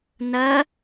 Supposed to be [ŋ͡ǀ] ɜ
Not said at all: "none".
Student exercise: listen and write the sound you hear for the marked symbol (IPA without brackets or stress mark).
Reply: n